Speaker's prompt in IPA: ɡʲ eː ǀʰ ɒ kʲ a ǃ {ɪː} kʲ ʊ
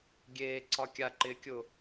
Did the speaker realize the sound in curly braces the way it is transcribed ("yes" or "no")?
yes